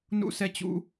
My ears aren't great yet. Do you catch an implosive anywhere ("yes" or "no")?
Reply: no